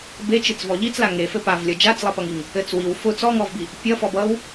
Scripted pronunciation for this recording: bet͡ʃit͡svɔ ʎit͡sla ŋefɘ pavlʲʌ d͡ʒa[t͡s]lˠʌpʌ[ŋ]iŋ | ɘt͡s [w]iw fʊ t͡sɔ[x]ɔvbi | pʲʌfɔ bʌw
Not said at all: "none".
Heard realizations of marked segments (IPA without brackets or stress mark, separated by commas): t͡s, ŋ, w, ŋ